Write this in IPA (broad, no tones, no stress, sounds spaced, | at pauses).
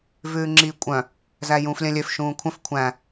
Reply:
v ʉː ŋ͡ǁ iː kʷʼ œ̃ | z æ j ũː f lʲ œ̃ lʲ ø f ʃ ũː kʷʰ œ̃ f kʷʰ æ̃